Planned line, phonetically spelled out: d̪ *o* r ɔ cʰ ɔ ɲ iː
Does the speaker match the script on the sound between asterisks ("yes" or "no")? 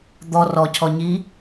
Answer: no